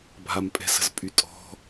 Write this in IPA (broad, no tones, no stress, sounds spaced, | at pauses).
bʱ a m pʼ ɛ̤ s ə̤ z pʼ y tʼ ɔ̤